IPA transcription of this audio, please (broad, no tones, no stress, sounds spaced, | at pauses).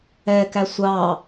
ɛ k æ sʷ ɑ